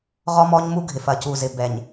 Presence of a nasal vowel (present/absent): absent